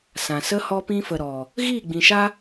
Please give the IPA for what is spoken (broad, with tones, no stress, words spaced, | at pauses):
sã˨sə˦ hɔ˧pĩ˧fə˨ ɾɔ˨ | ɣiː˦˨ɡ͡bĩ˨ʃa˦